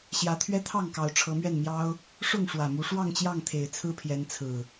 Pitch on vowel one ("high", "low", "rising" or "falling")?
rising